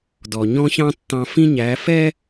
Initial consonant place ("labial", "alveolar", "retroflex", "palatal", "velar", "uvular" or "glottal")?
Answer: alveolar